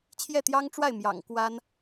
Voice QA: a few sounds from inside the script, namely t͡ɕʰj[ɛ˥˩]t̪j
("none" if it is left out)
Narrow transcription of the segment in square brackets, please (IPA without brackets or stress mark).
ɛ˥˩